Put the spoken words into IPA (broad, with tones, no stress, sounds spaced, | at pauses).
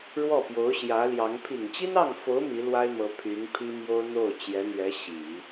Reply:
ɻ w ɔ˥˩ p j o˧˥ ʊ̯ ɕ j ä˧˥ l j ɑ˧˥ ŋ pʰ i˨˩ ŋ t͡ɕ i˥ n ɑ˥˩ ŋ f o˧˥ ʊ̯ m i˧˥ l w a˥ ɪ̯ m ɤ˧˥ pʰ y˧˥ n pʰ i˥ m j o˥ ʊ̯ n̪ o˥˩ ʊ̯ t͡ɕ j ɛ˧˥ n̪ ɥ ɛ˧˥ ɕ i˨˩˦